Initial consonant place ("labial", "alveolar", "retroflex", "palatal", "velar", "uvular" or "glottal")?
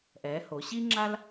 glottal